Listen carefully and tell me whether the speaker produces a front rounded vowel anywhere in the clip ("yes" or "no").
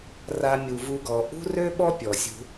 yes